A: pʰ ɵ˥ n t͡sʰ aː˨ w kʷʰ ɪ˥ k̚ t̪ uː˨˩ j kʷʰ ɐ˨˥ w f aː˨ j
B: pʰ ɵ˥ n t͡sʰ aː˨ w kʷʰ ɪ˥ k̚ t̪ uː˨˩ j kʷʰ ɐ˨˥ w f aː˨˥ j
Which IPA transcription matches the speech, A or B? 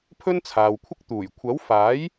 B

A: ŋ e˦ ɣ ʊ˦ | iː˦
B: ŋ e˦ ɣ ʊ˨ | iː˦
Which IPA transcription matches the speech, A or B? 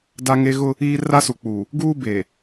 A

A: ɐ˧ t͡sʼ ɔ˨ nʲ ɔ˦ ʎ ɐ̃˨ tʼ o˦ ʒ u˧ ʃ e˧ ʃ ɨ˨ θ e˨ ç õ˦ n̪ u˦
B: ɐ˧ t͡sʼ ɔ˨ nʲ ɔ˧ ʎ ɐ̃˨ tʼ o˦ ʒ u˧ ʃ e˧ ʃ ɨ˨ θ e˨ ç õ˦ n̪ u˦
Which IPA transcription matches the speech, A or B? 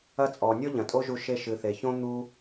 A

